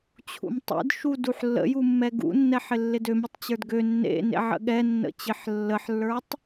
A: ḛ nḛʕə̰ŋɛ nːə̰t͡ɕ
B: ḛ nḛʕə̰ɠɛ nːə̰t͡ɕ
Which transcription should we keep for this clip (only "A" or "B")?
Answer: B